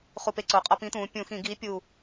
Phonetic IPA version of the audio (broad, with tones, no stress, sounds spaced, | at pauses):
χ u˧˩ p e˧ ǀ o˩˧ qʼ ɒ˧ p ĩ˨˥ t̪ ũː˩˧ pʲ ũ˧˩˧ x ĩ˧˩˧ ɡ iː˨˥ pʲ uː˧˩